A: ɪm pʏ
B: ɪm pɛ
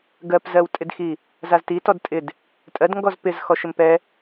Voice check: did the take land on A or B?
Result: B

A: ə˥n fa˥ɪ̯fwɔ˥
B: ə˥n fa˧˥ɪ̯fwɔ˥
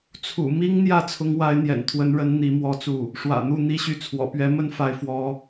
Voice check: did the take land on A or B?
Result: A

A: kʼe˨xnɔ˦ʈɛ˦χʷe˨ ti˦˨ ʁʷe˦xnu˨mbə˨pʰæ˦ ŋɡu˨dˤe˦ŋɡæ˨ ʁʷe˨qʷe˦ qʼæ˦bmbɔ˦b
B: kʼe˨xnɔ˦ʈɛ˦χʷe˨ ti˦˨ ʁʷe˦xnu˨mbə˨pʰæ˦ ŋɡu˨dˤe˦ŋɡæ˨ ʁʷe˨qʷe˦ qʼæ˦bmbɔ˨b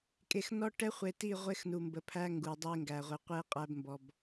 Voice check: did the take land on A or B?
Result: B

